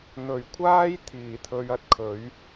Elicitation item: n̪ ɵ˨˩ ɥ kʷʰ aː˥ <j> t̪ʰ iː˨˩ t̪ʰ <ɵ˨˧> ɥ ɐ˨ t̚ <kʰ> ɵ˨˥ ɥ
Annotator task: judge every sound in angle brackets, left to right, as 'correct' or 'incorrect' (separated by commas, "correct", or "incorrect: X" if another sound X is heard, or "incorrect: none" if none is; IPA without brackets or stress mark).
correct, correct, correct